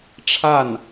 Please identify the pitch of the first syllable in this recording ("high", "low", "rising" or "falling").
falling